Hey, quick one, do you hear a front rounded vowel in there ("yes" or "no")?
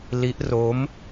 no